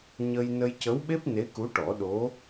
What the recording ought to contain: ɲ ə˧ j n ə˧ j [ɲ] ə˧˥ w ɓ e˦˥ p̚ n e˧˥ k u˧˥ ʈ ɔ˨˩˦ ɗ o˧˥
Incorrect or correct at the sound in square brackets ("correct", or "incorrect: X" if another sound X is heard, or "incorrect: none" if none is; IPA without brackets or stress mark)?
incorrect: c